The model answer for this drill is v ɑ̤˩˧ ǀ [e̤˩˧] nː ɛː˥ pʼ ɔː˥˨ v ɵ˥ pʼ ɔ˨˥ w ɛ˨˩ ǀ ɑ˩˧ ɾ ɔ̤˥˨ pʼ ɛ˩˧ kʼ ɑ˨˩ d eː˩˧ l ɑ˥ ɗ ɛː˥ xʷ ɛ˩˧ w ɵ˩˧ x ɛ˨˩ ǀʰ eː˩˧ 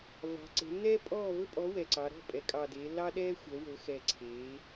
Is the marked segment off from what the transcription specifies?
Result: no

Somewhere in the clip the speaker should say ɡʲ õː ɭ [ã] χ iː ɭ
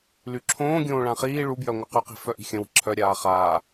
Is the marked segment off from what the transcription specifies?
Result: no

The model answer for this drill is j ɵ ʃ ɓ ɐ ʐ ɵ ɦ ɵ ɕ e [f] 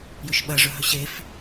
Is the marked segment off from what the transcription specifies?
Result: no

